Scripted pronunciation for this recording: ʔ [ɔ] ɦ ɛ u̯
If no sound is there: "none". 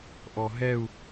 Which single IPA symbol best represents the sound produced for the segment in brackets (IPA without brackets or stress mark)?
ɔ